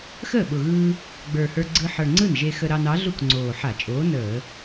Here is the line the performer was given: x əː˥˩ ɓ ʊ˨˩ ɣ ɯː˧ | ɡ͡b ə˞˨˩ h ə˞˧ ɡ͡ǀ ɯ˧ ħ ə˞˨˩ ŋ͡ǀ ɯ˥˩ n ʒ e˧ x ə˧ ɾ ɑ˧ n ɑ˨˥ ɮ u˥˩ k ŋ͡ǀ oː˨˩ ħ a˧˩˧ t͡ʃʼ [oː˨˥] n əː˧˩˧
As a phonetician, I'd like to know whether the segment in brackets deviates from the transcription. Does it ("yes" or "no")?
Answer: no